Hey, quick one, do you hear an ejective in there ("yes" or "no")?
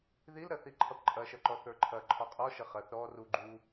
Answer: yes